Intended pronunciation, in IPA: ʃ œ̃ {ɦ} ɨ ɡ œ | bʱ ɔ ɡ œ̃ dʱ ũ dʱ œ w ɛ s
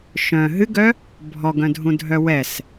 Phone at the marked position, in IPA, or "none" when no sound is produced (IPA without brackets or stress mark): ɦ